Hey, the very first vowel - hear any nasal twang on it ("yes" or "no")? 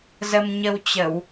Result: no